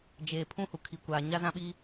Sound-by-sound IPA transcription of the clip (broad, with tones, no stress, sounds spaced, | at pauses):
d͡ʒ eː˨ pʰ ũ˦ h u˨ kʰ i˨ kʷ aː˨ ɲ a˦ z ã˦ ɓ iː˦